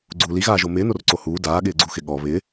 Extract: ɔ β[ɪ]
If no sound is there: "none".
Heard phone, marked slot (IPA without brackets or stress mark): ɪ